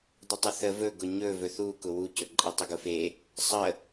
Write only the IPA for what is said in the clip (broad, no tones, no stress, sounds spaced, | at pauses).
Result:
dˤ ə tˤ ʊ θ ə v ɵ ɡ ʊ ɲ ɵ v ɵ θ u k ʊ w u c ɵ ǃʼ e tˤ ə ɡ ʊ f e | sˤ ə